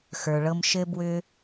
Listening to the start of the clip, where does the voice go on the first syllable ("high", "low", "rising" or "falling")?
low